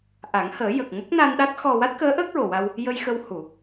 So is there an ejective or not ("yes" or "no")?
no